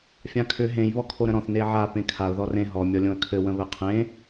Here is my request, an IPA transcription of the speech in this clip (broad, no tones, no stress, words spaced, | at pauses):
fʲãkʰʏ ɦẽj βɔkʰoɾə̃ɾɔ̃θ neʕa pẽkʰaʊ̯ ðɔrẽ ɦɔ mʲɔlʲõə̯kʰɘ wə̃βɘqʰẽ